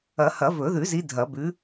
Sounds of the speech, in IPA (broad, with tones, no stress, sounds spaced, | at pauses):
ɐ˨˩˦ h ɐ˨˩˦ v ɵ˨˩˦ ð ʉ˨˩˦ z i˨˦ dʱ ɐ˨˩˦ b ʉ˨˦